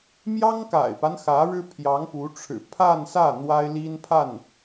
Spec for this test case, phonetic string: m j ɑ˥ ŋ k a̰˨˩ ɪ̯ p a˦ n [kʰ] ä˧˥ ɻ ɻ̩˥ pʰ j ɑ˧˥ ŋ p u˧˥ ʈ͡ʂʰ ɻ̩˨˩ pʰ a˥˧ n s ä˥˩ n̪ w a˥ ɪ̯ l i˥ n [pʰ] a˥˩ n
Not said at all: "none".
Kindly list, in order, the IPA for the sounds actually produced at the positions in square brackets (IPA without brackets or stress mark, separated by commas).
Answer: x, pʰ